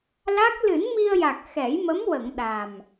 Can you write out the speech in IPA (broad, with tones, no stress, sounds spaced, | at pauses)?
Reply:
l a˦˥ k̚ l ɨ˨˩˦ n m i˧ ə̯ j a˨˩ k̚ x ɛ˨˩˦ j m ə˧˥ m w ə˨˩˨ ŋ ɗ a˨˩ m